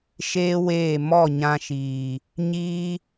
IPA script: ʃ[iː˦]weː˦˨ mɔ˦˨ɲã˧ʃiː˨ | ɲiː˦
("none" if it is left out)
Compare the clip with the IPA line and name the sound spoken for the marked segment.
eː˦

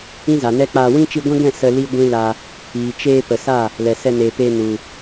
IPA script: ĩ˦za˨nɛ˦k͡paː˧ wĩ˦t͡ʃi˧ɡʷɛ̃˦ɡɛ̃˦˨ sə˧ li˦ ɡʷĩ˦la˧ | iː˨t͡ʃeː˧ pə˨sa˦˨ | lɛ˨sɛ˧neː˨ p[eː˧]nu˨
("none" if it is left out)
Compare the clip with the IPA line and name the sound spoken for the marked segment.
eː˧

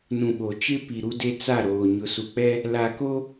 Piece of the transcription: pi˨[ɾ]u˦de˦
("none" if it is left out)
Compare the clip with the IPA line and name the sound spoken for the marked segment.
ɾ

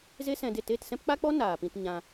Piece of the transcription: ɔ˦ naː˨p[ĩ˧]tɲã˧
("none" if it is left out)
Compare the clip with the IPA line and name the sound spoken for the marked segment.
ĩ˧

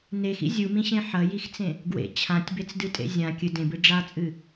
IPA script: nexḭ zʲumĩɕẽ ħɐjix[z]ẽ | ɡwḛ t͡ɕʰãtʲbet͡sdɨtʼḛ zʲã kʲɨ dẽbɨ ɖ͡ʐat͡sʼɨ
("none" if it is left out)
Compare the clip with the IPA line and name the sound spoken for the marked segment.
t͡s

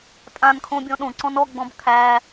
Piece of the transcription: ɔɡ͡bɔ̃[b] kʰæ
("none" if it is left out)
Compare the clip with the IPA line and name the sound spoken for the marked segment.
b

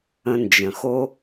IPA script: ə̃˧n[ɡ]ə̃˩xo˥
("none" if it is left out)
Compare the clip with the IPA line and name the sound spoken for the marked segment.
d͡ʒ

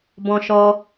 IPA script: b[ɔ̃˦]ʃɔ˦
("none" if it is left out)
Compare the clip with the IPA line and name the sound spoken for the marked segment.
ɔ̃˦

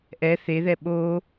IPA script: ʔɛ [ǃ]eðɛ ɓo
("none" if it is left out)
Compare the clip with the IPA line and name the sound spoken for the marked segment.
θ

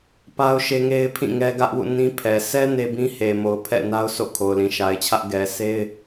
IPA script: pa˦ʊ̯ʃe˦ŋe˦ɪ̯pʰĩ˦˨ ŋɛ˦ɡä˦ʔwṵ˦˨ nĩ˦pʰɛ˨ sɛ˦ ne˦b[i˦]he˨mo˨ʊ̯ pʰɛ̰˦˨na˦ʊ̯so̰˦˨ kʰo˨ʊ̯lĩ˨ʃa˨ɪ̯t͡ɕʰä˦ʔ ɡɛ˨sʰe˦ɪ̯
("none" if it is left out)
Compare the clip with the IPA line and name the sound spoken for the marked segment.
ĩ˦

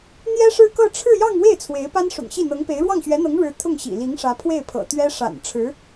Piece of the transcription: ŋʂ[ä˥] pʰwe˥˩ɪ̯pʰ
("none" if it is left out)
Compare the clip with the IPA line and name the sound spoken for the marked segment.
ä˧˥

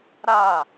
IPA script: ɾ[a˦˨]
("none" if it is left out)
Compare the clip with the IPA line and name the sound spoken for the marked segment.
a˦˨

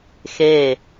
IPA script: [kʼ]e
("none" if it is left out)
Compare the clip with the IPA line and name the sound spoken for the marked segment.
x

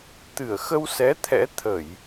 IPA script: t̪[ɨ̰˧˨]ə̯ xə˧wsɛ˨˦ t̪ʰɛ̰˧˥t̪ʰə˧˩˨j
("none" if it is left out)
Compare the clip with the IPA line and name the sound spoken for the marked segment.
ɨ˧˩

